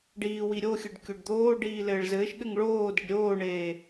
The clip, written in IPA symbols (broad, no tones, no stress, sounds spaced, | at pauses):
ɖ iː w i ɾʲ o xʲ ɘ ɖ kʲ o ɖ d̪ oː ɖ iː l ɘː ɭ z ɘː ʃ ɠ ɘ ŋ ɭ oː d e ɖ ɾʲ oː ɳ eː